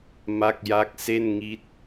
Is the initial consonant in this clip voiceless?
no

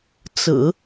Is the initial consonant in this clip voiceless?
yes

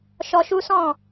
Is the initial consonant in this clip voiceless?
yes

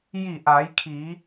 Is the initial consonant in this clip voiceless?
no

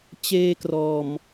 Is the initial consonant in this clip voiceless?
yes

